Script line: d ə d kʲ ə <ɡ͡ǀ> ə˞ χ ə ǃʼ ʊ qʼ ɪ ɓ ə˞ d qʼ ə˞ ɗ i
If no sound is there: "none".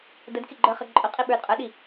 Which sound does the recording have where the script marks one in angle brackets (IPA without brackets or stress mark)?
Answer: ɡ͡ǃ